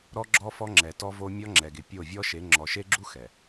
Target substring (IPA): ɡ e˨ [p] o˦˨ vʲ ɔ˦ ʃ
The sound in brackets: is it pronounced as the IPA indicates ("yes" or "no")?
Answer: no